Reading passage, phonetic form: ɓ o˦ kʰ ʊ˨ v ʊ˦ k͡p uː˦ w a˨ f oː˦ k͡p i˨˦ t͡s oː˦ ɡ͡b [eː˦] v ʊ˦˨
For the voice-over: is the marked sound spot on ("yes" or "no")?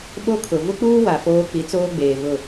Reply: no